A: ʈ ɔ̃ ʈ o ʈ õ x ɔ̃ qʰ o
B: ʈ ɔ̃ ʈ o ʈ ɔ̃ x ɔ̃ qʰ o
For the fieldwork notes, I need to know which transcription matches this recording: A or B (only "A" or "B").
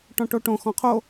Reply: A